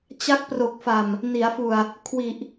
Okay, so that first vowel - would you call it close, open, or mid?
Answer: open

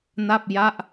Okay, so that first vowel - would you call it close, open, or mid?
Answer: open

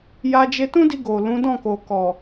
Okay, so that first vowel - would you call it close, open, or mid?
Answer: open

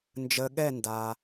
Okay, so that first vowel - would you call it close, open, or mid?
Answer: mid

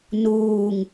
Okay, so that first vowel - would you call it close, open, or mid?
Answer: close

